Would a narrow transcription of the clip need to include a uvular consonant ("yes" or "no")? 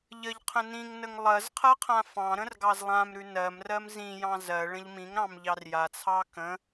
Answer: yes